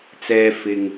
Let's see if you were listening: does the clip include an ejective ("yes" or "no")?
no